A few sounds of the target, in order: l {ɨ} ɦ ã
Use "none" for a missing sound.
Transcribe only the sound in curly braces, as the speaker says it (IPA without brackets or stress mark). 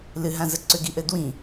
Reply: ɨ